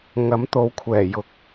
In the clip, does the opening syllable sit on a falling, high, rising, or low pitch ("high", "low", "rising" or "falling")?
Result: rising